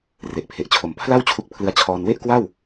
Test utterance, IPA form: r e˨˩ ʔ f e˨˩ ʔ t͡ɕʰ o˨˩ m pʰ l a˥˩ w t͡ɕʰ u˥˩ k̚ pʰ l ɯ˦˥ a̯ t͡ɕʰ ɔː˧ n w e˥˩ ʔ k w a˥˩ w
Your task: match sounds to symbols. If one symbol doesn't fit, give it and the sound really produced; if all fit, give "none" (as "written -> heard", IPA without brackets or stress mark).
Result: f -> pʰ